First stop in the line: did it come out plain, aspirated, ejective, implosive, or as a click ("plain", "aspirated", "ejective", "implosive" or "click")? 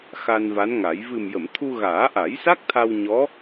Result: aspirated